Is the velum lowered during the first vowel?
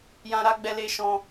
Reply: yes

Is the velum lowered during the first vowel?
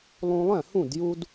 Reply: yes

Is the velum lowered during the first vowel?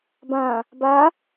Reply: yes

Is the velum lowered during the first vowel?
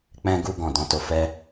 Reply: yes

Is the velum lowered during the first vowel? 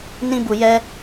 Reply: yes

